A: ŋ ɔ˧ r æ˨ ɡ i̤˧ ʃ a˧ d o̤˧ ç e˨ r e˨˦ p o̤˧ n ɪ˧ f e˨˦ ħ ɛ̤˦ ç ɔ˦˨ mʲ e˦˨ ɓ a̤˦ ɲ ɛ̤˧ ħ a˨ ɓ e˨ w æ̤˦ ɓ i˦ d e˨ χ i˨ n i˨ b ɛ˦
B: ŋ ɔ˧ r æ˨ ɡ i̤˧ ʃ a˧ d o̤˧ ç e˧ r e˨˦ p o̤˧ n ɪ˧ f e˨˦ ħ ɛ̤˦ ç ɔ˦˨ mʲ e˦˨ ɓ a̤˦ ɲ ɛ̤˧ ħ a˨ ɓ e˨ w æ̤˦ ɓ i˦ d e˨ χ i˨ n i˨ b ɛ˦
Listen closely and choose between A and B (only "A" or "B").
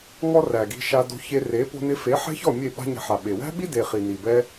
B